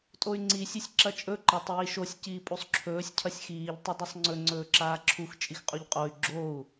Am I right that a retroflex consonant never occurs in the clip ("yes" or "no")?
yes